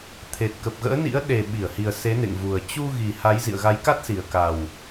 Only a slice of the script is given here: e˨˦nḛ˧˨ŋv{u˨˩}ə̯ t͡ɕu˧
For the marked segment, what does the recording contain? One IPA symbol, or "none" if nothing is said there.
u˨˩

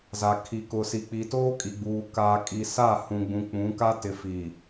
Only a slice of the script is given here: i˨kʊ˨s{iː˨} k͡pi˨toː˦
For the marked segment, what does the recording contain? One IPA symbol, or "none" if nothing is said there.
i˨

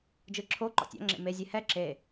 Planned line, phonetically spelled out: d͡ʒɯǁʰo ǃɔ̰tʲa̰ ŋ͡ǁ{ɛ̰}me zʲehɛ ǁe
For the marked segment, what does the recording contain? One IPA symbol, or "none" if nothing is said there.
ḛ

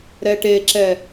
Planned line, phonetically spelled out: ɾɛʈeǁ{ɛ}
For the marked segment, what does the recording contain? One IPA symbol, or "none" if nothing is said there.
ɛ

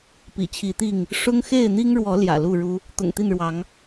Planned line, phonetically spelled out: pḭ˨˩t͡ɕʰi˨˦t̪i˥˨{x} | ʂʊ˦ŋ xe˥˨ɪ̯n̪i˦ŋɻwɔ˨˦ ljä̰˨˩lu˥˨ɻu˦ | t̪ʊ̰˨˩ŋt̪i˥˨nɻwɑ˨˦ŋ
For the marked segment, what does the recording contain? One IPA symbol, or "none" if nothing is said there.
ŋ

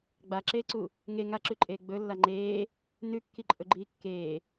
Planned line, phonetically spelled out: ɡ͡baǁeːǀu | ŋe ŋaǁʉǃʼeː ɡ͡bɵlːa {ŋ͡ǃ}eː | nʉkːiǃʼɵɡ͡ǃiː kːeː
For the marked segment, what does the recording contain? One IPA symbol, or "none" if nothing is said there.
ŋ͡ǃ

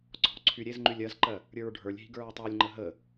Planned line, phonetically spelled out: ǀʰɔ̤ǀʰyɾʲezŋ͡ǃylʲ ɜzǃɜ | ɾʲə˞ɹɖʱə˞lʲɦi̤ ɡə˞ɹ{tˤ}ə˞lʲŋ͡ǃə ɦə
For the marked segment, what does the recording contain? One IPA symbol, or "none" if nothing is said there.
tˤ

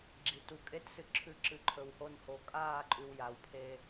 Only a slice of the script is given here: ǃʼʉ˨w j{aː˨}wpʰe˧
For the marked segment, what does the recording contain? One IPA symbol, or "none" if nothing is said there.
a˨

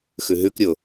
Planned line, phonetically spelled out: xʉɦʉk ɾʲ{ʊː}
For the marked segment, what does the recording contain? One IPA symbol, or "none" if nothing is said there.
ʊ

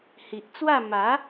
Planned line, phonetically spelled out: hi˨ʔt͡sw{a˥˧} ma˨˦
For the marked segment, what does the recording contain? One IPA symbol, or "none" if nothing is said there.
a˥˧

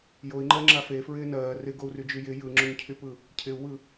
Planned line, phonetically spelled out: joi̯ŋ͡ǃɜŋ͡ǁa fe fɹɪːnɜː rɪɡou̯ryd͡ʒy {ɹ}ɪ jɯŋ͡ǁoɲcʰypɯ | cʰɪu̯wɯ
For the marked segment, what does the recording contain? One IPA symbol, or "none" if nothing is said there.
j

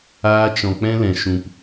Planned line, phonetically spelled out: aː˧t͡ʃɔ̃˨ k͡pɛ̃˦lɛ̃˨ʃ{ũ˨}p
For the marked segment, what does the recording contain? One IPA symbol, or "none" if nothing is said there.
ũ˨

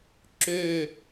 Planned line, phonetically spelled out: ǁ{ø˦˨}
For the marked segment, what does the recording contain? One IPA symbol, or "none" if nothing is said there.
ø˦˨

